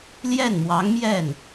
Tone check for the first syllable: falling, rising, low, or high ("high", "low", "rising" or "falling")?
falling